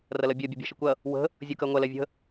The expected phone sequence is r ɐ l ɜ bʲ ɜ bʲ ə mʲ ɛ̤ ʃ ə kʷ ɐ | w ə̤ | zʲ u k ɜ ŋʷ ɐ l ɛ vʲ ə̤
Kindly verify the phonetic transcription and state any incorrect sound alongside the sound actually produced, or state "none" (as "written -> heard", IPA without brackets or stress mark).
mʲ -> bʲ